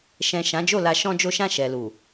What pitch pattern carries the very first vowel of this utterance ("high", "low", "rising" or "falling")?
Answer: low